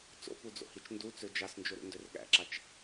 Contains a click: yes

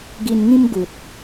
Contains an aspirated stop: no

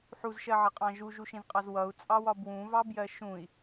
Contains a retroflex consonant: no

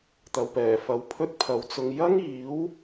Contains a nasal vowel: no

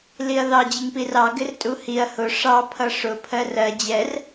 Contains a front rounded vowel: no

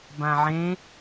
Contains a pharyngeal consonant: yes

